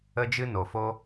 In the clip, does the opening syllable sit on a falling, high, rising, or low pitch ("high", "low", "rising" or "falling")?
high